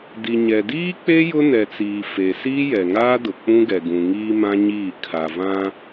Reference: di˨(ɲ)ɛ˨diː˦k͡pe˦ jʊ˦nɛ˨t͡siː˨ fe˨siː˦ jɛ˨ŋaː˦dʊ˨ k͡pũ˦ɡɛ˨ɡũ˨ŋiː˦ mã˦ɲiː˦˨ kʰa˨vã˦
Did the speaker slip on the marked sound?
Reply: no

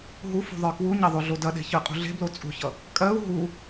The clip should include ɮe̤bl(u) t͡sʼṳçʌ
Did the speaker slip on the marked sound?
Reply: yes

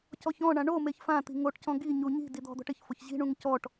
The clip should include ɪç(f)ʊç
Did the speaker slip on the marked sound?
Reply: no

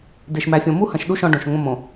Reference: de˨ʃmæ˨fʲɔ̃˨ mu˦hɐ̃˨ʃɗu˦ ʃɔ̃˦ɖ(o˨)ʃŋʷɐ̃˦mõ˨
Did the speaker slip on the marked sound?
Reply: yes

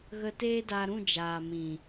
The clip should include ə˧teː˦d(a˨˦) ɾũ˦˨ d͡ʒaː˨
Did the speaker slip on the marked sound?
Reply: yes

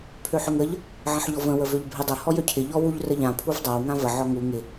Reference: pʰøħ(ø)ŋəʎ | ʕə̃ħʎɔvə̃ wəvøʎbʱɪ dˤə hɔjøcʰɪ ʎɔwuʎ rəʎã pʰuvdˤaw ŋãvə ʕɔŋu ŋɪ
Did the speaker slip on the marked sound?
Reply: no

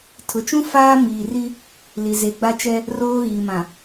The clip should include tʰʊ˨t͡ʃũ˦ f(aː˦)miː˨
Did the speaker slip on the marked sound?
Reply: no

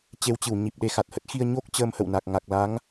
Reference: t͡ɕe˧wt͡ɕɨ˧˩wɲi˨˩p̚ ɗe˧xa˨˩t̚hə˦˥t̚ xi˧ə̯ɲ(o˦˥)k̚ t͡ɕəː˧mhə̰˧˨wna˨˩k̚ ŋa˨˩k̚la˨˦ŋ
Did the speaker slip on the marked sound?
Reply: no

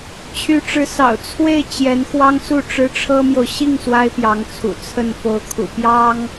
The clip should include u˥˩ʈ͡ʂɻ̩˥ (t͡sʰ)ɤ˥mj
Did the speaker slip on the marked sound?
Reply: yes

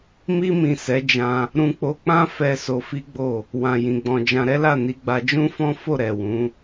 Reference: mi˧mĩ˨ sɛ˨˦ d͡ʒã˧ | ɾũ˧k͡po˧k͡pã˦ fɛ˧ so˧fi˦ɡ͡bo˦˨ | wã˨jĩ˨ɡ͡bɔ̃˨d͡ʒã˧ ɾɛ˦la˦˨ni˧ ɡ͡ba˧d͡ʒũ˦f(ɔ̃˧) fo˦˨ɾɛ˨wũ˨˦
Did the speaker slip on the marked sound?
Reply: yes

